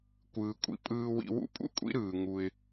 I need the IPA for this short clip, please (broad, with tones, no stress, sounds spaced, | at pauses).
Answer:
kʷ ɯː˨ kʷʼ ḭ˨ pʼ ɯː˧ w ḭ˧ w ṵ˦ pʼ ṵ˦ kʷʼ ḭ˦ ɾ ɯː˨ ŋ u˧ ɪ̯